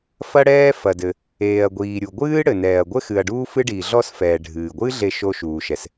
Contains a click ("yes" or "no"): no